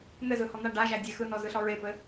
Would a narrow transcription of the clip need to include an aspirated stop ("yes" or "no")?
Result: no